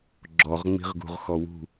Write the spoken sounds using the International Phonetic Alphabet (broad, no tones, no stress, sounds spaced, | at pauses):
ɡ͡ǁ ɔ ʁ ŋ͡m i̤ ʁ ɡ ṳ ʁ x ɔ w ṳ